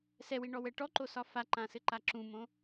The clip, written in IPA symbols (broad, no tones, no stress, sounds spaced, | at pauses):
s ɛ w i ɳ ɔ w ɛ ʈ ɔ ǃ o s ɒ f a ǃ ã s ɘ ǃ a ǁ ũ m õ